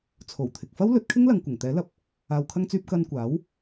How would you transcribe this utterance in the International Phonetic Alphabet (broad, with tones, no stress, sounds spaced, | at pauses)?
t͡sʰ o˨˩ w t̪ʰ ɪ˨ k̚ f ɐ˥ w l ɵ˨˥ t̚ kʰ ɪ˥ ŋ l ɐ˨ ŋ kʷ ɪ˨˩ ŋ t̪ ɛː˨˥ l ɐ˨˥ p̚ | aː˨ w kʰ ɐ˧ ŋ t͡s yː˧ p̚ k ɐ˧ n kʷ aː˨˥ w